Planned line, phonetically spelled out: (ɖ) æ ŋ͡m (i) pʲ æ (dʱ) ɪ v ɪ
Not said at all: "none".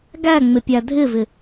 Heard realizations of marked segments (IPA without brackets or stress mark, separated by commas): ɡ, ɪ, dʱ